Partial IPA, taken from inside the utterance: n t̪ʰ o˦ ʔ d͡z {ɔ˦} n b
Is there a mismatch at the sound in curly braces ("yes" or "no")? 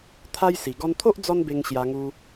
no